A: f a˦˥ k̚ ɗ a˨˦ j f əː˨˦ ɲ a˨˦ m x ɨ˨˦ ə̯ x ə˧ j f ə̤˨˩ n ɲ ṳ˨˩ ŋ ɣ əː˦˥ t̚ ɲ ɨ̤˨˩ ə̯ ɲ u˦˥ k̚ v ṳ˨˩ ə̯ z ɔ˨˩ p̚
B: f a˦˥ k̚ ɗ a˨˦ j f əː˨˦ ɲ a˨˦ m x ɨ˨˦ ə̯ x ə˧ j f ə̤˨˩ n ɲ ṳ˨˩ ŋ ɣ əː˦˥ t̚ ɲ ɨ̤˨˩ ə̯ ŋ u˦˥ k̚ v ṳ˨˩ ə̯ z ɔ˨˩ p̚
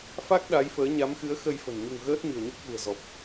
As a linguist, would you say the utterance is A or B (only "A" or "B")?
A